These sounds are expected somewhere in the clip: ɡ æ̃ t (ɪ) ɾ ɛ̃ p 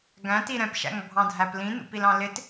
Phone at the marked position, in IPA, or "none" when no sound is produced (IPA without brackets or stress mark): i